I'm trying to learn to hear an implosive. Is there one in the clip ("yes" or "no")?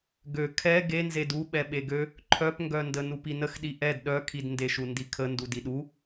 yes